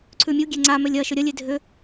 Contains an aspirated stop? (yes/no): yes